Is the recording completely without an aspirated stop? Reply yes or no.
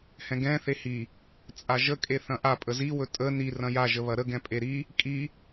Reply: yes